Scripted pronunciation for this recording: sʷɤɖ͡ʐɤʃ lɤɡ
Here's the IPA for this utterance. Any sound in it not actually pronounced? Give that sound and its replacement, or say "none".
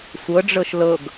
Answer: none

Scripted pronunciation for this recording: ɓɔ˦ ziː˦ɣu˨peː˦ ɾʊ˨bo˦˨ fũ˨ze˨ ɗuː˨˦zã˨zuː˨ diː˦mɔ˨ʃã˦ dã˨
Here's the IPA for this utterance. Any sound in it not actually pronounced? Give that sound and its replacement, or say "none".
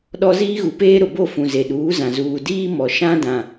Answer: ɓ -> ɗ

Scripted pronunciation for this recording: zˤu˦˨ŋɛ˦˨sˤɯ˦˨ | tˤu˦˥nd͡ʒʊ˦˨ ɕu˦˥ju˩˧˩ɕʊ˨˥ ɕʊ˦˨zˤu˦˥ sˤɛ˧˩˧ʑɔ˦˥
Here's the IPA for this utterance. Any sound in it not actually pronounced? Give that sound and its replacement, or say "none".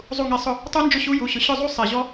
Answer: ɯ˦˨ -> ʊ˦˨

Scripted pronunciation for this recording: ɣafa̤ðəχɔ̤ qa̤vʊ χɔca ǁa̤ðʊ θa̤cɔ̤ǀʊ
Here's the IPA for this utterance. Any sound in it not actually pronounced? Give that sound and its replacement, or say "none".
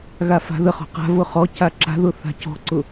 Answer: none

